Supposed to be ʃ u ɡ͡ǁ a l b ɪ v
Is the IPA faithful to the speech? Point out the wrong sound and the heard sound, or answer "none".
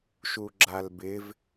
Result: none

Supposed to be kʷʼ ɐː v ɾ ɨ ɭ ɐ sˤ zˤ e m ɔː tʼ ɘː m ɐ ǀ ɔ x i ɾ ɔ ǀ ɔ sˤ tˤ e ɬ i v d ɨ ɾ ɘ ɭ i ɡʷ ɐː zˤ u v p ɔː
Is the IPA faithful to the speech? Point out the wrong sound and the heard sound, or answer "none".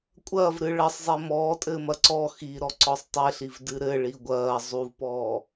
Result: none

